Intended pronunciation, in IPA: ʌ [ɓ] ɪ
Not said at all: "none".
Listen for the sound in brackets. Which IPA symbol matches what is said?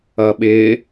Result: ɓ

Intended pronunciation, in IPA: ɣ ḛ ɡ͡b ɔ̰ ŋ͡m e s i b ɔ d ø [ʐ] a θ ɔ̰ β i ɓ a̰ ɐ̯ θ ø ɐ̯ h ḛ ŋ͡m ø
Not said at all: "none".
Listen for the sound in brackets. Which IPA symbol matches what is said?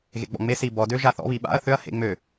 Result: ʒ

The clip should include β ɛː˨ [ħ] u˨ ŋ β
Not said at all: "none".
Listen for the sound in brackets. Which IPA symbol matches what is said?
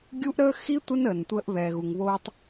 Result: ɣ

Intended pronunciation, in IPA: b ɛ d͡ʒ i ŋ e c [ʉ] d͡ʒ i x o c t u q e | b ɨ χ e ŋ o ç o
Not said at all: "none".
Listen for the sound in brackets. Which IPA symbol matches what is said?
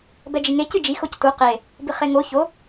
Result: ɨ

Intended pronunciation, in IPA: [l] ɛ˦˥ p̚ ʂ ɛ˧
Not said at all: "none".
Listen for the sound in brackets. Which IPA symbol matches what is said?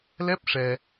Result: l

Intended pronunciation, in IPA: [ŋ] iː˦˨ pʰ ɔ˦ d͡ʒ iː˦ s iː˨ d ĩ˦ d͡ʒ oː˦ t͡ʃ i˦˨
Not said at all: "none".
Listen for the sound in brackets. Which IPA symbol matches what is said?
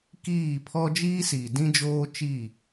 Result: k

